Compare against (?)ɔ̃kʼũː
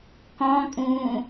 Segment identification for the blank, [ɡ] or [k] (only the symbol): k